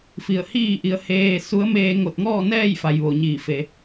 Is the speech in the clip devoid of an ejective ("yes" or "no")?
yes